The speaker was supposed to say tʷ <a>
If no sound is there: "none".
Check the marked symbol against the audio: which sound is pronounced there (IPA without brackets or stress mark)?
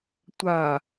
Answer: a